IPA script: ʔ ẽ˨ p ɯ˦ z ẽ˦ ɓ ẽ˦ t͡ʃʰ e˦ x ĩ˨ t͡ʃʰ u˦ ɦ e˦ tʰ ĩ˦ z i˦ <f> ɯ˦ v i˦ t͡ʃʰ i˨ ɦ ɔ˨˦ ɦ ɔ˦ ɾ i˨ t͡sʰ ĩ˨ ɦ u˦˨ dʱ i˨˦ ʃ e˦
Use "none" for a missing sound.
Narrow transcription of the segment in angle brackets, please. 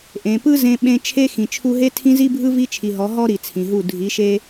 bʱ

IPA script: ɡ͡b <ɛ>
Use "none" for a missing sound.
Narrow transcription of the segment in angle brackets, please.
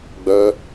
œ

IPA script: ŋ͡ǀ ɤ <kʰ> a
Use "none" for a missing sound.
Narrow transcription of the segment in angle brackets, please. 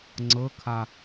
kʰ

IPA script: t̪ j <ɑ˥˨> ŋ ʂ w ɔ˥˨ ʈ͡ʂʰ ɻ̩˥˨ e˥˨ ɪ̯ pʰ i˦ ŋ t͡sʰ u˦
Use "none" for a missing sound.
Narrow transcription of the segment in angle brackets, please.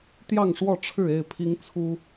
ɑ˥˨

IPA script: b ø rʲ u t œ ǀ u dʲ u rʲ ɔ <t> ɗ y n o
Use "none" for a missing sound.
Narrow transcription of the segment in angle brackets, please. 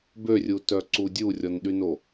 n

